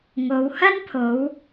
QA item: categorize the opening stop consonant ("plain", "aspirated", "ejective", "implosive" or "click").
aspirated